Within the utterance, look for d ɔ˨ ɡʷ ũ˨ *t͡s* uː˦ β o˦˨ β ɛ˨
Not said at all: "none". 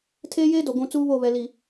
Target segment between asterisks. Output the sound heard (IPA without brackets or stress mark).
t͡s